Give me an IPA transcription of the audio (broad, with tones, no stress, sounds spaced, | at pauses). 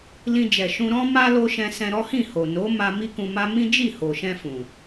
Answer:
l ĩ˧ d͡ʒ ɛ˨ ʃ ũ˧ ɾ ɔ̃˦ m a˦ l o˦ ʃ ɛ̃˧ s ɛ̃˧ ɾ ɔ˦ h ĩ˦˨ h o˨ n o˨˦ m a˦ m i˦ k ũ˧ m a˦ m ĩ˦ d͡ʒ i˦˨ h o˨ ʃ ɛ̃˧ f ũ˨